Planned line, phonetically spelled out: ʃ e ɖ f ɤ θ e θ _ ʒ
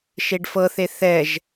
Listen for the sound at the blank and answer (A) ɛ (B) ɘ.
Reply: A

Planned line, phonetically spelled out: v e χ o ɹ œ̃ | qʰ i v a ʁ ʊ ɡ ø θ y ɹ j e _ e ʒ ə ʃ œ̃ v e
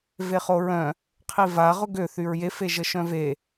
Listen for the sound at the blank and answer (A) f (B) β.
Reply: A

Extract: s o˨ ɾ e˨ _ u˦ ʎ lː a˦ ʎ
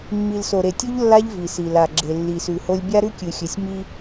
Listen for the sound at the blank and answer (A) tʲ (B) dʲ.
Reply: A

